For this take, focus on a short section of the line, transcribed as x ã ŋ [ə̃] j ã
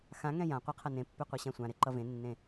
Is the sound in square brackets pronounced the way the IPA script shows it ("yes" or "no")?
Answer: no